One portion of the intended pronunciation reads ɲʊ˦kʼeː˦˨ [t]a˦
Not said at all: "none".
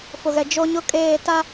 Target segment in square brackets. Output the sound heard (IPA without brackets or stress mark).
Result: t